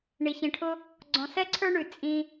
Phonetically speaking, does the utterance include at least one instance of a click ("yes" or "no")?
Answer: yes